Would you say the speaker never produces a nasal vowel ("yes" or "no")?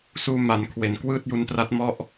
yes